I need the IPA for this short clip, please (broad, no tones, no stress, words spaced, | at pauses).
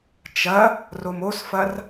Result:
t͡ʃɐ | romosfɐr